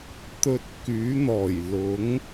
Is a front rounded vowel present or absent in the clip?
present